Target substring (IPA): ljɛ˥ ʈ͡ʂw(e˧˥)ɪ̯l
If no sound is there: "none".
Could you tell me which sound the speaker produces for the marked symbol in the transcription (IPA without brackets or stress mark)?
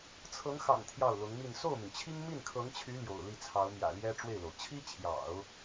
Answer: e˥˩